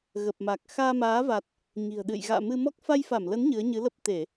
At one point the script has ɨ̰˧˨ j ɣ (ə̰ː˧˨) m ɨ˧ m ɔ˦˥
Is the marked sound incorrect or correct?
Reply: incorrect